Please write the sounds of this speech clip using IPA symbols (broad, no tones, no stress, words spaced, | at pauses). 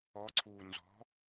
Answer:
ɔǀʰuː nzɔ̤